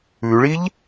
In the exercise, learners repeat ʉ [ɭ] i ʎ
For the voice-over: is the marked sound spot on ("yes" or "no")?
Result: yes